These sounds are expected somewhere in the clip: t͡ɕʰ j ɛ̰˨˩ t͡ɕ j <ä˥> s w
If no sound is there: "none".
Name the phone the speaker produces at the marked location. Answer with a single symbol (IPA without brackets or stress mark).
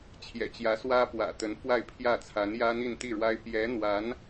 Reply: ä˧˥